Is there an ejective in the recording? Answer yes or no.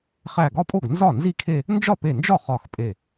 yes